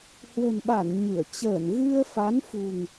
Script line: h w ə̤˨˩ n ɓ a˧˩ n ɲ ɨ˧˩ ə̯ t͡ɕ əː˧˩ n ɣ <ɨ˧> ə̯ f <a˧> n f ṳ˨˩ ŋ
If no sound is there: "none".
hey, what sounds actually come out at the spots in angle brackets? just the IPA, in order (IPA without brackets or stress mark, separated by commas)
ɨ˧, a˨˦